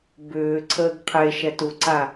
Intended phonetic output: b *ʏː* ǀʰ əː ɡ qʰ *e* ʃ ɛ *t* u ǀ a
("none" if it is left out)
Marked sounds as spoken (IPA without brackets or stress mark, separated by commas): ʏː, e, t